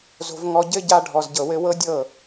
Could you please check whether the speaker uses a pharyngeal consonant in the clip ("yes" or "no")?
no